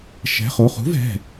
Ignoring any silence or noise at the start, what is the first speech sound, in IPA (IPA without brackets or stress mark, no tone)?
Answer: ʃ